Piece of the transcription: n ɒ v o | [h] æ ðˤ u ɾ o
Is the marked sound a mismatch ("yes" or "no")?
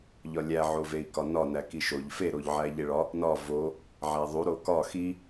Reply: yes